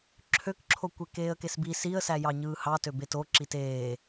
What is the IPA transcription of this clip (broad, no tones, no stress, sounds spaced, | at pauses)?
ǁʰ ø k ǁʰ o kʷ e k eː ə̯ k e s b i s i ə̯ s æ j ɑ ɲ ɯː h ɑ t ø b e t o ǁ i t eː